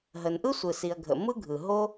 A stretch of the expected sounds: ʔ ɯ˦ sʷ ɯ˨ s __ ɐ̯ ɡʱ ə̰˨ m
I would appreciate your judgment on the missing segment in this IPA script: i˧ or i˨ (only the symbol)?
i˨